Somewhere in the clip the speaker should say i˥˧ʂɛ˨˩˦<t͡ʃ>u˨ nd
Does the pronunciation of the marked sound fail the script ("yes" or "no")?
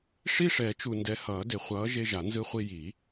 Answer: no